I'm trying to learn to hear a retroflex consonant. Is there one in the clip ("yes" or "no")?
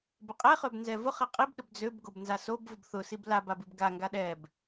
no